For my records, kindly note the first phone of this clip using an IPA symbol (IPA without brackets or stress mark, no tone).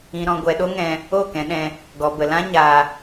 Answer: ĩ